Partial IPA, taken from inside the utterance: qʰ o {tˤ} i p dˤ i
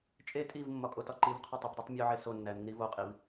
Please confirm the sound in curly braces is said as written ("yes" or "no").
yes